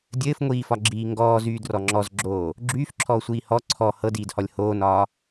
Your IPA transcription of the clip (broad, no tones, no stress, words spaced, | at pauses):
dʲɘːfŋʷiːfɒɡ͡ǁiː ŋɡɔːzyːdrɔ ŋ͡ǁɔzɡ͡ǁoː | ɡ͡ǁyːfǁʰɔːsʷiː hɔ ǀʰɔ hɤdiːdhɔlʲ hoːnɒː